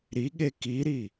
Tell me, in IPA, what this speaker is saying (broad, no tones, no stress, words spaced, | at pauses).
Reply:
ɾiɠe kiɾi